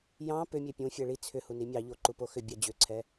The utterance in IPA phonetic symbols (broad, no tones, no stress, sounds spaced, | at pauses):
j ɑ̃ p ʏ mʲ e pʲ ũ fʲ ɛ ɭ i t͡sʰ ʏ h u n i mʲ ɑ ʎ o ǃ u p o x ʏ bʲ ɑ d͡ʑ ʏ ǀʰ ɛ